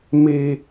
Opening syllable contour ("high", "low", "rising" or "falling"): high